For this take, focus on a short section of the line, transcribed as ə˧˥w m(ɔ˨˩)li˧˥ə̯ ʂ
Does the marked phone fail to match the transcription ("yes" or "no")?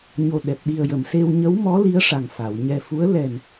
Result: yes